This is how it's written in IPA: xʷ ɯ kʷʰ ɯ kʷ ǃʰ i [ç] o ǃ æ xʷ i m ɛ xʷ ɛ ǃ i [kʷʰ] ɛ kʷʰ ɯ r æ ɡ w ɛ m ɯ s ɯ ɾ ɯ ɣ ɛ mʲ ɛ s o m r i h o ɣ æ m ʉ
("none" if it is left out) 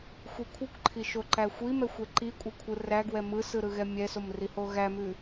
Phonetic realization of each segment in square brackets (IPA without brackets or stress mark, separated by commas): ʃ, kʷʼ